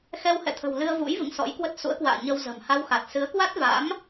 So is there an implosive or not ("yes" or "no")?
no